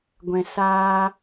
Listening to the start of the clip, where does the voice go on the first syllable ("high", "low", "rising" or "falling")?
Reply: low